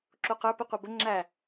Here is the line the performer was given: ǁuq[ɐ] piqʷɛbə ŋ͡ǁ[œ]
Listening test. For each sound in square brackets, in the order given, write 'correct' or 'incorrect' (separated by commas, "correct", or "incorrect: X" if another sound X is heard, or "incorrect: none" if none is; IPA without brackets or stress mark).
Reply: incorrect: ə˞, incorrect: æ